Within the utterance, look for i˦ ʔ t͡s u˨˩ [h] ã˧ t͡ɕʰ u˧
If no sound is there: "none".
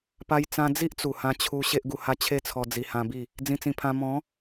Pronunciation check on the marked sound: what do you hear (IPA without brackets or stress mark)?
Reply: h